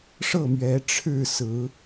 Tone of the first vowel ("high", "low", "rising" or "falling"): falling